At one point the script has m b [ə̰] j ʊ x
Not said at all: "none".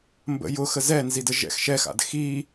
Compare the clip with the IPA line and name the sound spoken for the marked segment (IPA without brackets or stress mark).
ə̰